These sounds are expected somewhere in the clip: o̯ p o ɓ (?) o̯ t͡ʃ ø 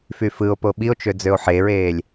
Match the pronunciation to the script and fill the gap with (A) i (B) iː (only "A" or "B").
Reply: A